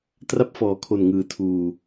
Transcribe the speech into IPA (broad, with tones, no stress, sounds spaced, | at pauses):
t r a˥˩ p̚ f ɔː˩˦ kʰ o˨˩ n ŋ ɯː˩˦ tʰ uː˨˩